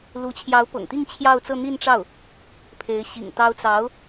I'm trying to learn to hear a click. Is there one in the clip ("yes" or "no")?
no